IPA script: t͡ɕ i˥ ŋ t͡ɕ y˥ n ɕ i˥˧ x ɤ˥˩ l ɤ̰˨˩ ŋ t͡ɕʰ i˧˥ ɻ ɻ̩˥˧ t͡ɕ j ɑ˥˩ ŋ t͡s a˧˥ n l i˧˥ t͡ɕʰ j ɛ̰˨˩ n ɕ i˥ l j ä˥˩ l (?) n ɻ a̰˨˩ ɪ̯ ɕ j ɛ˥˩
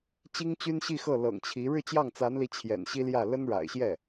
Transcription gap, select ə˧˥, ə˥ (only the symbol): ə˥